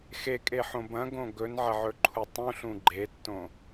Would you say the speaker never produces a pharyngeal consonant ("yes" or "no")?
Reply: no